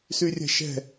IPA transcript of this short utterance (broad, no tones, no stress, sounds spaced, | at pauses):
s y rʲ ɛ̤ ʃ ɛ̤